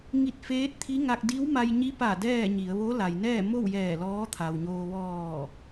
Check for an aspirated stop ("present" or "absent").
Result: present